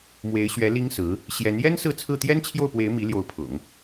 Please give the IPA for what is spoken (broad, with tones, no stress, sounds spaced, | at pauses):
m w e˧˥ ɪ̯ ɕ ɥ ɛ˧˥ l i˥ ŋ s ɹ̩˧˥ | ɕ j ɛ˧˥ n j ɛ˥ n s ɹ̩˥˧ t͡sʰ ɹ̩˥˩ t̪ j ɛ˥ n t͡ɕʰ j o˥˩ ʊ̯ p w e˧˥ ɪ̯ m i˧˥ l j o˧˥ ʊ̯ pʰ ʊ̰˨˩˦ ŋ